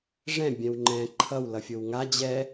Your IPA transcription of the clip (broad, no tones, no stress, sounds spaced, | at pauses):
ʐ ɛ̃ bʲ ɛ̃ w ŋ͡ǃ ɛ̃ ǃʰ ʌ w l ʌ fʲ o w ŋ a d͡ʑ ɛ